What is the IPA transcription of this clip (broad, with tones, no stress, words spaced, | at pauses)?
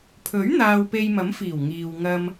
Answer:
pʰɵ˨˥ɥ n̪aː˧wpe˧j mɐ˨˥m fiː˨˩w ŋiː˨wŋɐ˧m